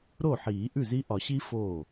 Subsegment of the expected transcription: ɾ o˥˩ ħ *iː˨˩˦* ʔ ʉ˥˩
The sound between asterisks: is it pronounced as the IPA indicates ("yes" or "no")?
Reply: yes